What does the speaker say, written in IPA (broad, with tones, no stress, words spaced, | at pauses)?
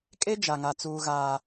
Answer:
kʼe˦ d͡ʒa˨ŋa˨t͡suː˨ ɣaː˨